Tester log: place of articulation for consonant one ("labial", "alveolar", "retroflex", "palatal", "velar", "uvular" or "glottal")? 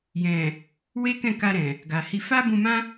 palatal